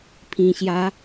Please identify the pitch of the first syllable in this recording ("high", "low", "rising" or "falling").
low